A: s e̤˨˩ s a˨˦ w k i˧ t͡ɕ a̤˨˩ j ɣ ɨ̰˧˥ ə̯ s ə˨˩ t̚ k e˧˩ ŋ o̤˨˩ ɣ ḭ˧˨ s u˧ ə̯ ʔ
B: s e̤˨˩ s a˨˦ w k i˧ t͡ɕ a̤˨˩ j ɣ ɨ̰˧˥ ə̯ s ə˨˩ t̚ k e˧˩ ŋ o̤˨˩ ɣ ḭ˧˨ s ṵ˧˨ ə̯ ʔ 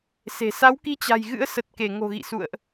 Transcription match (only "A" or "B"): B